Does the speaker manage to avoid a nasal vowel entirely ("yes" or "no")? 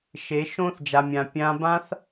no